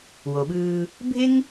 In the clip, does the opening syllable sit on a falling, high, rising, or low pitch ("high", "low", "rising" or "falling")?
low